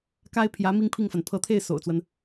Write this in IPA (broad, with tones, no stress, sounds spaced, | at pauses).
k a˥ ɪ̯ pʰ j ä˧˥ m i˥ ŋ pʰ i˥˩ ŋ f a˩ n pʰ ɤ˧˥ t̪ʰ e˥˩ ɪ̯ s o̰˨˩ ʊ̯ t͡s w ə˦ n